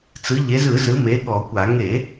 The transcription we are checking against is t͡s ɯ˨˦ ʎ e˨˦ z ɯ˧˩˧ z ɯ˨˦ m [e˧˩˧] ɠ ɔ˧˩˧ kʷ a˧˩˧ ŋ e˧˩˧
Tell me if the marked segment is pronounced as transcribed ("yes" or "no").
no